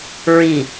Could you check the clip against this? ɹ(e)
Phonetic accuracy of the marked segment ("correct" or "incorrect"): incorrect